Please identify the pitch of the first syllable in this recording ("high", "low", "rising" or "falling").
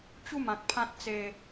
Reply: falling